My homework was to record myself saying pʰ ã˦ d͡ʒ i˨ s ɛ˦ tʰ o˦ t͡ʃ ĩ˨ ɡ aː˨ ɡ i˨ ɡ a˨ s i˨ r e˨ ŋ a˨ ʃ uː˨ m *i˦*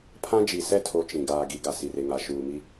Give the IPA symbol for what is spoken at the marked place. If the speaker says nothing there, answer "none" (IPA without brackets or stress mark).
i˦